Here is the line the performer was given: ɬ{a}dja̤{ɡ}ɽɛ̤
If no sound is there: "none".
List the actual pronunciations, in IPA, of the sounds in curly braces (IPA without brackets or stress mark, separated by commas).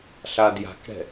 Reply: a, k